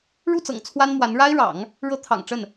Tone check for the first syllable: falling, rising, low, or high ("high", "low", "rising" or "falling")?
falling